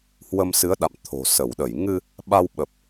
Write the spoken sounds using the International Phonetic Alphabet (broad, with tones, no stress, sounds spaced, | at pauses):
h w ə˧ m s ɨ˨˦ ə̯ ɗ a̰˧˨ m t̪ʰ o̤˨˩ s ə˧˩ w ɗ ə˧˩ j ŋ ɨ˧ | ɓ a˧ w ɓ ə˨˩ p̚